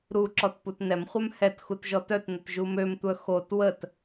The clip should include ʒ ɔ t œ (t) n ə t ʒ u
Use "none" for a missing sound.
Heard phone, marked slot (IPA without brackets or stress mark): t